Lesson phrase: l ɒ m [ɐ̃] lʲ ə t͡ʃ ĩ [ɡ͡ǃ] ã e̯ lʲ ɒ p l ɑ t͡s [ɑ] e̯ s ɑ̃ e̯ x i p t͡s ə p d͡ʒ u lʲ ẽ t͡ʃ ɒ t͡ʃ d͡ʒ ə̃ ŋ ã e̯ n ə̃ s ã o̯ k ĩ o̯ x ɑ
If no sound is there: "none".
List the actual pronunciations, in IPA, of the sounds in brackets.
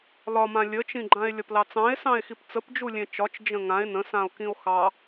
ã, ɡ͡ǃ, ɑ̃

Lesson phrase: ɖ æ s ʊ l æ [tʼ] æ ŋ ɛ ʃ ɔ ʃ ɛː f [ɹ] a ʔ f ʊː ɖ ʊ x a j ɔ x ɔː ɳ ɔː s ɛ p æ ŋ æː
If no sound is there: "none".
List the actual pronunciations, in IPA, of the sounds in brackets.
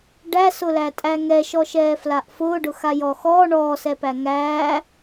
tʼ, l

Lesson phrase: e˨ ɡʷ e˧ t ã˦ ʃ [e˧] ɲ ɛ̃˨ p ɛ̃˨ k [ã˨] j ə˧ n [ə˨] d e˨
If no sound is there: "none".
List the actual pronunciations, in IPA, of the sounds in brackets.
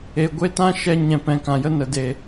ɛ˧, ã˨, ə˨

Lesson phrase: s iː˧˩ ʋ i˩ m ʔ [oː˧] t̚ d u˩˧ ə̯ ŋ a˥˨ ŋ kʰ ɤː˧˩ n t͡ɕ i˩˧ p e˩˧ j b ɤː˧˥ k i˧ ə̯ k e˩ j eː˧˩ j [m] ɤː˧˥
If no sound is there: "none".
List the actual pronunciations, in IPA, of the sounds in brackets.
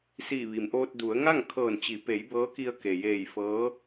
oː˧, f

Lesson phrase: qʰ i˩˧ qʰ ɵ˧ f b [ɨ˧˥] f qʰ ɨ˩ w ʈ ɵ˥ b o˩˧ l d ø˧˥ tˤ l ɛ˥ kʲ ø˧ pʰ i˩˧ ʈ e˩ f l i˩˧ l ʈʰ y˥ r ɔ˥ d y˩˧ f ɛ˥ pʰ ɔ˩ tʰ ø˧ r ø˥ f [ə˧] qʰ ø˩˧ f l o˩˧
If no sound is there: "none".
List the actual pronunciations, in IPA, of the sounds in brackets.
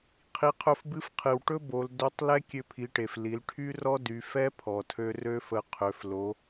ɨ˧˥, ə˧

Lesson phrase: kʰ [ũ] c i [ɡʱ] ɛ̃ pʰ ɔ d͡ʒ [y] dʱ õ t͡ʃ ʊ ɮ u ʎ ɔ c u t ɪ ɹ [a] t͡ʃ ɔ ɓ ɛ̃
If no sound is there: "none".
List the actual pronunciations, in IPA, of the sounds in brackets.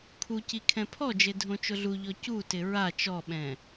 u, kʰ, e, a

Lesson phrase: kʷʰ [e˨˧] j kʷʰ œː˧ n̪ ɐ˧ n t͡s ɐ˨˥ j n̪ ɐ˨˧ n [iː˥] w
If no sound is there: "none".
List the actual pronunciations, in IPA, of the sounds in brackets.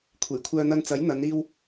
e˨˩, iː˧

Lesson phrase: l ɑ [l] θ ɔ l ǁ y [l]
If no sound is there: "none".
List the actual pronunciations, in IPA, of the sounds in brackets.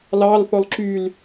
l, l

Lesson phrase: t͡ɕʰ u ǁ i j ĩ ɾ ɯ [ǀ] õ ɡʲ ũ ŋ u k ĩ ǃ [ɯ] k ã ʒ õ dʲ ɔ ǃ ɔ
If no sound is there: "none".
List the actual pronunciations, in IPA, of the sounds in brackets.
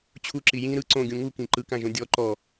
ǀ, ɯ

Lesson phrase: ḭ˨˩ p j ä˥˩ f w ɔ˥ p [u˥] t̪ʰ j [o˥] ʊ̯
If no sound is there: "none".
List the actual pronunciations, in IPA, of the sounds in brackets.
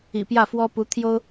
u˧˥, o˥

